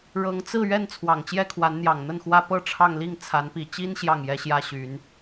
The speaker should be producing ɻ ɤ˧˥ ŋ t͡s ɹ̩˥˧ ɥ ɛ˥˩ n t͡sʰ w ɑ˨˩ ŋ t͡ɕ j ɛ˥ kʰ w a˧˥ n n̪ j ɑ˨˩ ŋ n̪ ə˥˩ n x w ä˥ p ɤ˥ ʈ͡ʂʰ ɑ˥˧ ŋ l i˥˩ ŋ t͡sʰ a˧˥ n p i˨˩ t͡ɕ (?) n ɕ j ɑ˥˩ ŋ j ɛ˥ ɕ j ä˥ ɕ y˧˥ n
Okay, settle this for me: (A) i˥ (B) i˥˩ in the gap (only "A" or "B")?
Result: A